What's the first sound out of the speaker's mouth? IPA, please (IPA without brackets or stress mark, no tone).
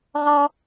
ʁ